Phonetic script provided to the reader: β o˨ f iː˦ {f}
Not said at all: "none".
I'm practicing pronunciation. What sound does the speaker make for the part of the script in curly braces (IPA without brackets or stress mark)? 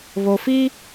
none